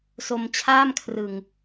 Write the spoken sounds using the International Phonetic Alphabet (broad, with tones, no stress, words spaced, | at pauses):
so˧mt͡ɕʰaː˥˩mkʰrɯ˨˩ŋ